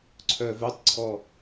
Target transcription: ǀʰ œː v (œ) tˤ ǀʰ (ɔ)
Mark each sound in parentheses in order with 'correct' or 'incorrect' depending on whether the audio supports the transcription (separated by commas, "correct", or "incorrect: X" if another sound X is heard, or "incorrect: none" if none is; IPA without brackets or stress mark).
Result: correct, correct